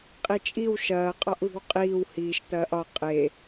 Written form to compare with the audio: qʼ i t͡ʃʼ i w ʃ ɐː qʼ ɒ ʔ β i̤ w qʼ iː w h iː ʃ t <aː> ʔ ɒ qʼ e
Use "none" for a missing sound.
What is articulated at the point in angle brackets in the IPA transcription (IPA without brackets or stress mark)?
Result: ɐː